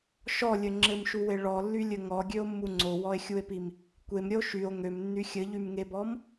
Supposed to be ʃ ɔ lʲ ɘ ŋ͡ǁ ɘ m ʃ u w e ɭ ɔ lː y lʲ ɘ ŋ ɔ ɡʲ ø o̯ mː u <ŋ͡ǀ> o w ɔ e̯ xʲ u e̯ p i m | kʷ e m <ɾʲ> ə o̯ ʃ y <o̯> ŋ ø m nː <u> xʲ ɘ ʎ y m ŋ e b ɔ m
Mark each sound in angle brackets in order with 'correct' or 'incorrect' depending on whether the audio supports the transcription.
correct, correct, correct, incorrect: y

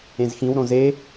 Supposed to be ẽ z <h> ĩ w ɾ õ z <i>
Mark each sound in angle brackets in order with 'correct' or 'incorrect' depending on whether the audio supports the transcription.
incorrect: x, incorrect: e

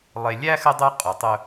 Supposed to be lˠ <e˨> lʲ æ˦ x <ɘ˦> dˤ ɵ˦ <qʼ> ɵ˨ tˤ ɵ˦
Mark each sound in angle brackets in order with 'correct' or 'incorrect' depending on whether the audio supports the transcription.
correct, correct, correct

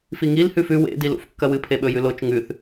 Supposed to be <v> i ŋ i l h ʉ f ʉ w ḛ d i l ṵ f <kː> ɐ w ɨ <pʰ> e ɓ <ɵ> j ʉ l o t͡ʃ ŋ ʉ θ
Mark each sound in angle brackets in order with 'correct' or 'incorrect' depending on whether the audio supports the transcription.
incorrect: f, correct, correct, correct

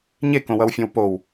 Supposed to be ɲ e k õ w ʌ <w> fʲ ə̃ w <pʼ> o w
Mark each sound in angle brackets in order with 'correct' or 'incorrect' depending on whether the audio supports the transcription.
correct, incorrect: p

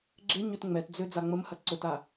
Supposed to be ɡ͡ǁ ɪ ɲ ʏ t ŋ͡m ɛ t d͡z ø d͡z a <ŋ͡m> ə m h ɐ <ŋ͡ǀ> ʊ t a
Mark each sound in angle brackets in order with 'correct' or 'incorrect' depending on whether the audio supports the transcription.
correct, incorrect: ǀ

